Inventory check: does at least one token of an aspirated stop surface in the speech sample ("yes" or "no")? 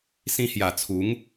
yes